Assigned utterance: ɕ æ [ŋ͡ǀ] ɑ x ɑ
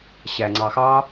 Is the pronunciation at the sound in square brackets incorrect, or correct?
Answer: correct